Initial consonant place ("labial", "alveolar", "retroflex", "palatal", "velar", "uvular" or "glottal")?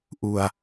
glottal